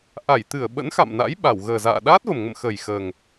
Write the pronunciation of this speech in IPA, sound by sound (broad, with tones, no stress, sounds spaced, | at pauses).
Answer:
ʔ a˧˩ j t̪ ɨ˧˩ ə̯ ɓ ə̰˧˥ n x a̰˧˨ m n a̰˧˥ j ɓ a˧˩ w ɣ əː˨˩ z a̰ː˧˨ ɗ aː˦˥ t̚ v ə˨˩ m ŋ ə̰˧˨ m x ə˨˩ j x əː˨˩ ŋ